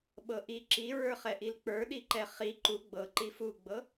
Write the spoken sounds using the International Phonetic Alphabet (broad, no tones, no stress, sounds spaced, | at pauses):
ɓ ɤ ʔ i ǁ i ɹ ə˞ χ ɛ ʔ i l k͡p ə˞ ɗ i ǃ ɛ χ i ǃ u ɡ͡b ɤ ǃ i f u ɡ͡b ɤ